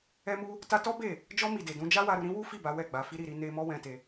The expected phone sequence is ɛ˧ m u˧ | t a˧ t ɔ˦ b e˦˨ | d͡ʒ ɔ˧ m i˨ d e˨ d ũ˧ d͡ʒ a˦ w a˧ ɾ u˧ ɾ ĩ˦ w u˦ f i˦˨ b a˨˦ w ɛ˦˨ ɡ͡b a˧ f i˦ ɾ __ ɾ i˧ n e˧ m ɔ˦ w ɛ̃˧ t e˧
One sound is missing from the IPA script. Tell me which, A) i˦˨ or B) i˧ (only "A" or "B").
A